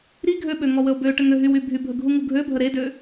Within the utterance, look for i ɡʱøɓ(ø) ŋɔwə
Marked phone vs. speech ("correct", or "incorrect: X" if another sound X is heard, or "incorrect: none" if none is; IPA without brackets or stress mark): correct